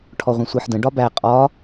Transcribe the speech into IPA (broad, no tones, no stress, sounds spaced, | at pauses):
ʈʰ ɔ ʁʷ ɛ̃ sʷ ɜ ħ d ə̃ ɖ ɒ b æ qʼ ɒ